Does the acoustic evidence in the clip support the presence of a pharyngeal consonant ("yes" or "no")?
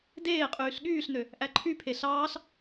no